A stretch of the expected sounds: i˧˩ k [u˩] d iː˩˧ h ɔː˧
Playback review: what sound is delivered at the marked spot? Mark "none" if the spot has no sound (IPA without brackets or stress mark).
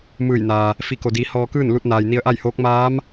o˩